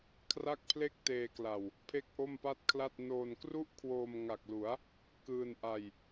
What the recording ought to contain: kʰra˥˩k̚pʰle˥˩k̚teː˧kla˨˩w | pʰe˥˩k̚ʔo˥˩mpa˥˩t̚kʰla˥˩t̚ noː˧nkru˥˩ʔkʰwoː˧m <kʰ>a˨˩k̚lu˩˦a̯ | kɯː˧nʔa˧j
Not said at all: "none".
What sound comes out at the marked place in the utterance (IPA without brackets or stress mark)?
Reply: ŋ